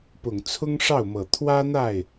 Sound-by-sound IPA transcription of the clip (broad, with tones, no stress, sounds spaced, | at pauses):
p ʊ˨˩ ŋ t͡sʰ ʊ˥ ŋ ʂ ɑ˥˩ ʊ̯ m ɤ˨˩ t̪ʰ w ä˥ n̪ a˥˩ ɪ̯